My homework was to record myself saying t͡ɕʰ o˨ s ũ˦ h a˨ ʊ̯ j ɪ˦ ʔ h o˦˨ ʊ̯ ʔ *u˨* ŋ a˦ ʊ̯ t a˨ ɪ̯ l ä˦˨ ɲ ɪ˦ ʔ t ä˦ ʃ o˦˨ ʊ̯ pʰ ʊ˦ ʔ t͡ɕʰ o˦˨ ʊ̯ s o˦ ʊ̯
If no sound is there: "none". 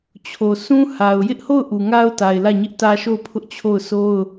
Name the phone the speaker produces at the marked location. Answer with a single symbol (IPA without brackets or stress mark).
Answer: u˨